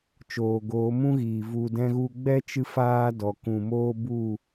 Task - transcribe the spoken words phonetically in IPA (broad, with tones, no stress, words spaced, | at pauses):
t͡ʃoː˨ɡoː˨˦mũ˦ɣiː˨ vu˨dɛ̃˧ɣu˧ɡ͡bɛ˦ t͡ʃɨ˦faː˦dɔ˨ kũ˨moː˦bu˦˨